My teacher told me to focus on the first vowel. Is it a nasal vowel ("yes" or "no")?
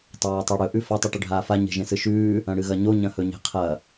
no